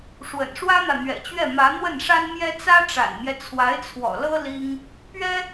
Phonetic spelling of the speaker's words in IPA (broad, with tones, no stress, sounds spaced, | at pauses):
ʂ w ə̰˨˩ n ʂ w ä˥ n̪ ä˨ n̪ ɥ ɛ̰˨˩ t͡ɕ ɥ ɛ˥˩ m ä˧˥ n̪ w ə˥˩ n ʂ a˥ n m j ɛ˥ t͡s ä˥ ʈ͡ʂ a̰˨˩ n m j ɛ˦ t͡sʰ w a˧˥ ɪ̯ t͡sʰ w ɔ̰˨˩ l ɤ˥ l i˥ ŋ | p ɥ ɛ˥